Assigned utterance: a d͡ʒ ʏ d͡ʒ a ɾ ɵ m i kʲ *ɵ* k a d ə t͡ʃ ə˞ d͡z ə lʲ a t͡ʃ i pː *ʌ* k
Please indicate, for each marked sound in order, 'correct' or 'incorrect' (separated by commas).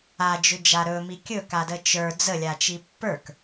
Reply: correct, incorrect